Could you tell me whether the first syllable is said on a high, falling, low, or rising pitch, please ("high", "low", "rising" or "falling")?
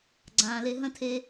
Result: low